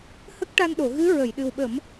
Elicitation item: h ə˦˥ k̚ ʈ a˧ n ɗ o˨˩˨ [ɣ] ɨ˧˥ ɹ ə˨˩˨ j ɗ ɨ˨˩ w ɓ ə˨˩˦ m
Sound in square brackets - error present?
no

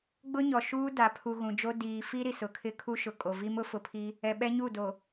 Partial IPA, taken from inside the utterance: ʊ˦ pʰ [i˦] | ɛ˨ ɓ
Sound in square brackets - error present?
no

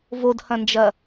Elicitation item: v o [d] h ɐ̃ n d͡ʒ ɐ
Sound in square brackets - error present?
no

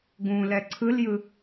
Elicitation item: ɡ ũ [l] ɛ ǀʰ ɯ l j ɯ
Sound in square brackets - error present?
no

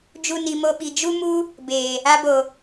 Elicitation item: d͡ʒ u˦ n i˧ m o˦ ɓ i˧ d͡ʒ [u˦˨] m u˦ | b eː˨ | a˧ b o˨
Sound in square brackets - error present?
yes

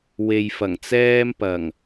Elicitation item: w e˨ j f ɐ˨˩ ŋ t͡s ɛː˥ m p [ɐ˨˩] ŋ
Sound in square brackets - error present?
no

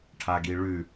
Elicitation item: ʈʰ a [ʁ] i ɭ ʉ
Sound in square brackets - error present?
yes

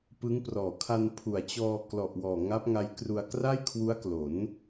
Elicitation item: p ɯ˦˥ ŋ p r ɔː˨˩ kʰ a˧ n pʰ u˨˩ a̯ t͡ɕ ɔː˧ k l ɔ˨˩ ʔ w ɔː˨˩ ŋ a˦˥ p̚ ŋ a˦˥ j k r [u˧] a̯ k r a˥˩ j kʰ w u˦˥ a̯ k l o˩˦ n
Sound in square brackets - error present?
no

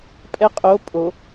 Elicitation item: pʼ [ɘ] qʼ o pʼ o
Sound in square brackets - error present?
yes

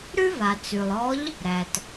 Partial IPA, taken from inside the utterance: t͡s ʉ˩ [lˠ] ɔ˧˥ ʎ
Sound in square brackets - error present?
no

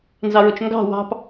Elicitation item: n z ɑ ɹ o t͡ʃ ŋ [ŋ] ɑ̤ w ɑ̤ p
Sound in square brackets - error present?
yes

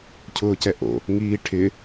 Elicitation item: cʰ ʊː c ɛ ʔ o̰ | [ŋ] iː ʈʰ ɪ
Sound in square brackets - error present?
no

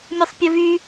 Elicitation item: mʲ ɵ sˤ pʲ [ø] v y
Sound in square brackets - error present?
yes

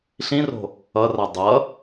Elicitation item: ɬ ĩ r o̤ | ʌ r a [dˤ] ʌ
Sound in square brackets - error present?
no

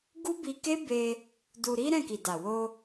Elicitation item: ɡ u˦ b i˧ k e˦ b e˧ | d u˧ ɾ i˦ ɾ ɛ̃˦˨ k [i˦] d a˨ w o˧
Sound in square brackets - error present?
yes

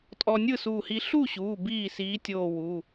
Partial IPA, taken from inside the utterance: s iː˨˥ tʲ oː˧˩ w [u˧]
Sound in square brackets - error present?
yes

